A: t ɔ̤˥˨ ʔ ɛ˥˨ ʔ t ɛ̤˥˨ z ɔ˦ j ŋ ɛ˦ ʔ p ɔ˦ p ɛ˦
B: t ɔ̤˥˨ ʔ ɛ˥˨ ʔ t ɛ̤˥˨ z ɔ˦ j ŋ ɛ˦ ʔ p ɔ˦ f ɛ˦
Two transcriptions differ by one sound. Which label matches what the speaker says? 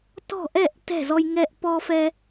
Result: B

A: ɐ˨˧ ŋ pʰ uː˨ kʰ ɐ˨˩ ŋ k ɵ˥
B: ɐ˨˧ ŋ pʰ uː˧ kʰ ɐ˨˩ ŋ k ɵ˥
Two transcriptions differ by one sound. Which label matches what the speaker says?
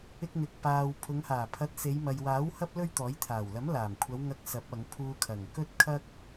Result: B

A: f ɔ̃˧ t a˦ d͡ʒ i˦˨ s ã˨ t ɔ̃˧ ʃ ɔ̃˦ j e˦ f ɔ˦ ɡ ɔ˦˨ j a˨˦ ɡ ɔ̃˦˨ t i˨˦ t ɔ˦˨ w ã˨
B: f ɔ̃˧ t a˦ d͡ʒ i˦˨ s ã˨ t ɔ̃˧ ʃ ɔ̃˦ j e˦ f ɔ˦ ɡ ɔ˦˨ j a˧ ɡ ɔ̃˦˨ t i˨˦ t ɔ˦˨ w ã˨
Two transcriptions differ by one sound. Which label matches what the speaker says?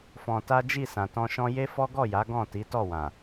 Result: A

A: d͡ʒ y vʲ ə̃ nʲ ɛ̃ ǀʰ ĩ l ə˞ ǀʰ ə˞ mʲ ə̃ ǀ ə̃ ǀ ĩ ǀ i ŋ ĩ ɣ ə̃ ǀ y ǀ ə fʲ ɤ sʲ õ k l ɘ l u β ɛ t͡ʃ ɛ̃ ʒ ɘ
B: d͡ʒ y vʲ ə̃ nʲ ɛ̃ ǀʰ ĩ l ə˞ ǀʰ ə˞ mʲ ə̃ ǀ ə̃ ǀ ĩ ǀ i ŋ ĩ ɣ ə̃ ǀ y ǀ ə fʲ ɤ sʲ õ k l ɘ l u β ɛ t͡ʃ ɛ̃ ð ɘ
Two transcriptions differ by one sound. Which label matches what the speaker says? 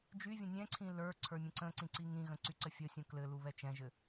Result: A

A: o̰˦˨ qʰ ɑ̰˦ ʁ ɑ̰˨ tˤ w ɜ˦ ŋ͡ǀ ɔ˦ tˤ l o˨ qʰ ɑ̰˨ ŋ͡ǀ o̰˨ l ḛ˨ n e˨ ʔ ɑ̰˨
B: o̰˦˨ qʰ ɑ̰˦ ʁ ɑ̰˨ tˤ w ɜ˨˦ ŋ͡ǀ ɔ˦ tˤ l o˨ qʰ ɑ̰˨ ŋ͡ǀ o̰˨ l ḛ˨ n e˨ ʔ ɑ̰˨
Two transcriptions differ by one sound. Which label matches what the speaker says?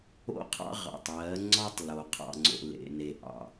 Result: B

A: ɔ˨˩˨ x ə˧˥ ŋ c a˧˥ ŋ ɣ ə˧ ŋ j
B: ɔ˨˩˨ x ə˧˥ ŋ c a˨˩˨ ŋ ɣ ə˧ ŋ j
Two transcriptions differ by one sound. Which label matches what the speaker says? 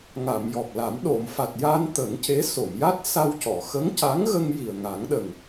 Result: A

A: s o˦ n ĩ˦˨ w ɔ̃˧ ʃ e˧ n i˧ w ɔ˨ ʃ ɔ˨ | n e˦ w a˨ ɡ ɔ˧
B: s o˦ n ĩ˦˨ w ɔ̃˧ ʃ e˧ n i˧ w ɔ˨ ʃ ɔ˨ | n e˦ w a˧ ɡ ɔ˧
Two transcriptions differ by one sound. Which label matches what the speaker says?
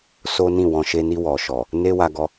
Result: B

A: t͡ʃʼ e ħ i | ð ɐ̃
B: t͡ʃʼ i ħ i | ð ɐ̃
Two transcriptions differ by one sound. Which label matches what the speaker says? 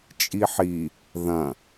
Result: B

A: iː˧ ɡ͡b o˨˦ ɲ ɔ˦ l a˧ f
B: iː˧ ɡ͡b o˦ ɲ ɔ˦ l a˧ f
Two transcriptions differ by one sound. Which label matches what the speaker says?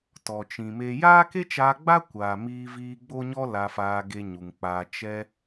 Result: B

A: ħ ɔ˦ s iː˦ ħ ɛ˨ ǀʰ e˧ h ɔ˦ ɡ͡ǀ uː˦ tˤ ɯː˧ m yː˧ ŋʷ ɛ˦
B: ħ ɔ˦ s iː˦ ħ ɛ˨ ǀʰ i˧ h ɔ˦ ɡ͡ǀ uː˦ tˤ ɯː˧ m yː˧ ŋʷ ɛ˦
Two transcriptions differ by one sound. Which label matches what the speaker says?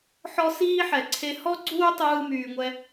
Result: A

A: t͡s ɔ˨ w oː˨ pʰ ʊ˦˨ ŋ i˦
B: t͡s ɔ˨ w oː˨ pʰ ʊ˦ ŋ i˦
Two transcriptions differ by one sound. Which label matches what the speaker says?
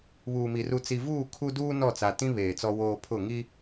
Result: A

